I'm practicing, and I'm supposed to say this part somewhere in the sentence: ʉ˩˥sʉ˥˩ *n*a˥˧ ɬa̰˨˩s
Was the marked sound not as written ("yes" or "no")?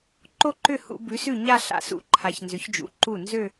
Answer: yes